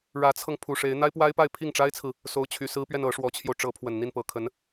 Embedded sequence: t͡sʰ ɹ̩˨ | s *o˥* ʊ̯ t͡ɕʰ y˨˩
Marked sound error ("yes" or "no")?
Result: yes